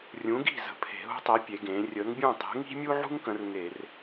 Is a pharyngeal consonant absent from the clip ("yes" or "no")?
no